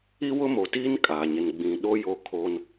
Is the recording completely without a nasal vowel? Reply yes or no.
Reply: no